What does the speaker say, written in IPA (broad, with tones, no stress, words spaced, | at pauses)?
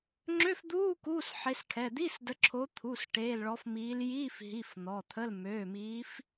ŋ͡ǁø˧˥˧fd̪uː˧˥˧ kuː˧˥˧sħe˨˦skʰɛ˩˧˩ d̪i˧˥˧sdə˨˦ǁʰo˨˦ t̪ʰu˩˧˩s ʈeː˩˧˩lɭɔ˨˦fmiː˨˦l jiː˧˥˧f ɦi˩˧˩f n̪ɔ˩˧˩t̪ʰə˧˥˧l møː˩˧˩miː˨˦f